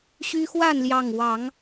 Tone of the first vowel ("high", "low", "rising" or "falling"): high